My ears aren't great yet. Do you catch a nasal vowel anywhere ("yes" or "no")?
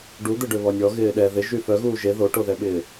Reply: no